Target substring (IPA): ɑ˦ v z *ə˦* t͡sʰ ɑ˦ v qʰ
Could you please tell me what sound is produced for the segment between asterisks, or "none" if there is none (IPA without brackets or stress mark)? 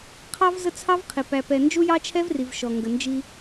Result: ə˦